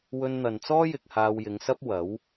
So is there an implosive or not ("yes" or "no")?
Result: no